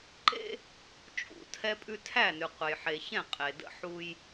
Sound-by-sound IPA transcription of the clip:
ǃ ḛ˦ | t͡ʃʼ ṵ˦˨ tʰ ɛ˦ pʼ ʉ˦ tʰ æ˦˨ n ʉ˨ qʷ e˨ j ħ e˨ ç ɛ̃˦˨ qʼ e˨ d ə̰˦ ħ u˦ j

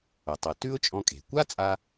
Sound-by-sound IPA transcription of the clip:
ʊ˩ tˤ ɨ˩ t ʉ˥ ʊ̯ t͡ʃʼ ɔ̃˧ kʼ e̤˩ kʷ a˥ t͡sʼ a˧

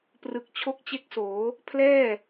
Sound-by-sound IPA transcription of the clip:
p r ɯ˨˩ k̚ t͡ɕʰ o˥˩ k̚ t͡ɕ e˥˩ k̚ s oː˩˦ | pʰ l ɛː˥˩

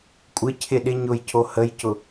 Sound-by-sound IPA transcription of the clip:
kʷʼ ɪ cʰ ɪ ɗ ɪ ɲ ʊ j cʰ o h ə j c ʊ

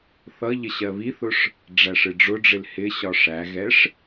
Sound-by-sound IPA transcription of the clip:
θ ʌ ʎ ə ɕ ɜ β i θ ʊ ʂ | ɖ͡ʐ æ ʂ ɪ ɖ͡ʐ ʊ ɖ͡ʐ ɪ l h ɪ ɕ ɒ ʂ æ ɣ ɛ ʂ

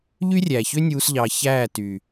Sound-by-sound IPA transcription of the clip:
ʎ y˦ rʲ æ˨ ç ø˦ nʲ uː˧ s ʎ ɑ˧ ç æː˦˨ t y˨

